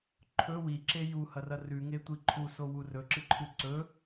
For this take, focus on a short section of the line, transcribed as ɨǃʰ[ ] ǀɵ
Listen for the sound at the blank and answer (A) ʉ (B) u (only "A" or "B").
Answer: A